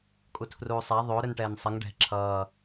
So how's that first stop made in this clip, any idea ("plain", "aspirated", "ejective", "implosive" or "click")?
ejective